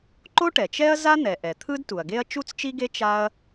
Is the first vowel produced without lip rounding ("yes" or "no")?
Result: no